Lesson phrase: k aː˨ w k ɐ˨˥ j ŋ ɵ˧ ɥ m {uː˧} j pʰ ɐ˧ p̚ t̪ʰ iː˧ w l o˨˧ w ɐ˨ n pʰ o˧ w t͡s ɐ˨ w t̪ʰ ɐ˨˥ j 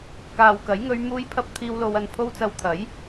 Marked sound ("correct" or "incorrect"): correct